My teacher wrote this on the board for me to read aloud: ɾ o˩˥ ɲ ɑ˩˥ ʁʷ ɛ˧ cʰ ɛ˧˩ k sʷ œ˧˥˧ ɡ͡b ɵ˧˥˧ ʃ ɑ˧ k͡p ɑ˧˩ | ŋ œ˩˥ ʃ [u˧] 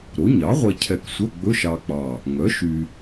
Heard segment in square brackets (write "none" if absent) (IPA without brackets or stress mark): y˧